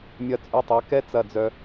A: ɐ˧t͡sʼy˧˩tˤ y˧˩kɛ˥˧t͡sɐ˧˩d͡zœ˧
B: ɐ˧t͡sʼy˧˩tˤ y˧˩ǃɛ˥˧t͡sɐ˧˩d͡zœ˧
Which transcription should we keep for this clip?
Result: A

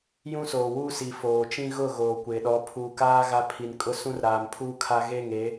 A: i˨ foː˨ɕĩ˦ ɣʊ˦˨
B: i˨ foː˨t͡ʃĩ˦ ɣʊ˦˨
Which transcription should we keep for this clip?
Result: B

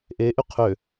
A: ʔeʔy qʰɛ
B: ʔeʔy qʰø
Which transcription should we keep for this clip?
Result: B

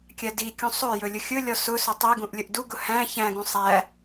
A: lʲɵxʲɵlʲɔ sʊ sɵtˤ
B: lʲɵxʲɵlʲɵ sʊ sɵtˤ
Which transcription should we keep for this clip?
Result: A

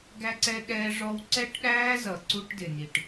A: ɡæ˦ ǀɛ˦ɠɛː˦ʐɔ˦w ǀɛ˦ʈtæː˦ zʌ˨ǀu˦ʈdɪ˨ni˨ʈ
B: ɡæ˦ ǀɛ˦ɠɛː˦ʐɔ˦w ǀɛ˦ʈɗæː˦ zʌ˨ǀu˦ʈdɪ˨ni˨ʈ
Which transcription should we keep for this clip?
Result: B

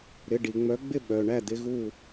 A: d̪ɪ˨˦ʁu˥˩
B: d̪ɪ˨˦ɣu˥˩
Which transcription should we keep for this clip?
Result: B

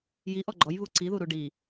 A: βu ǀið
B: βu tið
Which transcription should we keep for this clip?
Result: A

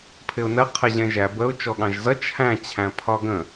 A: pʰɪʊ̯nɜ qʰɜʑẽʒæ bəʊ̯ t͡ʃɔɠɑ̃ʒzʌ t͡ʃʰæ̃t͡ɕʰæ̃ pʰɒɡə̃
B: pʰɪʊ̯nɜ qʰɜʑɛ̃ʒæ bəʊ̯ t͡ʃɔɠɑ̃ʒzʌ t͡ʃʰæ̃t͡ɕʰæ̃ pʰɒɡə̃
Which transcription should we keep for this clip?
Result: B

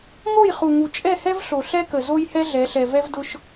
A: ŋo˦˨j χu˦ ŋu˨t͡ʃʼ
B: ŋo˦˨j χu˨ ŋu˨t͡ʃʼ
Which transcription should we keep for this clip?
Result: B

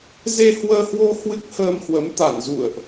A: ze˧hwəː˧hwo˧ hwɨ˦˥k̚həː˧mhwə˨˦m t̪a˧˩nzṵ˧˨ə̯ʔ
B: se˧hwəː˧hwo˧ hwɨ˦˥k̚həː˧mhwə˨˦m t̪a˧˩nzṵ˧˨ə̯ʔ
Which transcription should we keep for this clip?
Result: A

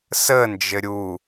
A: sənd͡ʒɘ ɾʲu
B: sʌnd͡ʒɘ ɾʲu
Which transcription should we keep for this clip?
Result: A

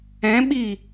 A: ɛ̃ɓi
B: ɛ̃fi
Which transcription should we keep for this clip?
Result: A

